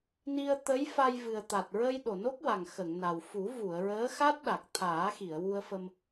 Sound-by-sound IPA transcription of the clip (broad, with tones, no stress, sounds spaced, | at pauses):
n i˧ ə̯ t̪ ə˧˥ j f a˧ j v ɨ˨˩ ə̯ t̪ a˨˩ t̚ ɹ ə˧ j ɗ o˨˩ n o˦˥ k̚ w a˨˩ ŋ x ə˨˩˨ ŋ n a˨˩ w f u˨˩˦ v u˨˩˨ ə̯ ɹ əː˧˥ x a˦˥ t̚ ɗ a˨˩ k̚ t̪ʰ aː˨˩˦ x i˨˩˨ ə̯ w u˧ ə̯ f ə˧ m